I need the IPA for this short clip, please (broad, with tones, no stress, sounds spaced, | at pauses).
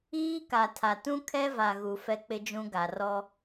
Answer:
iː˦ k a˨ tʰ a˨ t ũ˦ kʰ ɛ˦ v a˨ ɣ u˨ f ɛ˦ k͡p ɪ˦ d͡ʒ ũ˦ ɡ a˨ r ɔ˦